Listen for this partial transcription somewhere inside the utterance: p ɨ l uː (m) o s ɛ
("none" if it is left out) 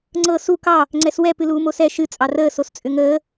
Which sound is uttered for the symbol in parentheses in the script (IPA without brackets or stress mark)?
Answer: m